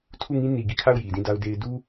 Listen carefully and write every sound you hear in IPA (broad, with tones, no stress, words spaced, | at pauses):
tʰu˦˨ŋĩ˦ ni˨ ɡi˦˨kʰa˦˨ʊ̯ ji˨dĩ˦˨da˦ʊ̯de˦ɪ̯ du˦